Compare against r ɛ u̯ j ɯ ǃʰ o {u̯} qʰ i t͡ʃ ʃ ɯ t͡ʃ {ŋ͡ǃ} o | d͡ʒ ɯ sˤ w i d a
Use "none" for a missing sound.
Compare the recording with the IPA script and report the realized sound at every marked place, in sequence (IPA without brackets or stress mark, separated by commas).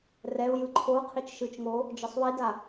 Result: u̯, ŋ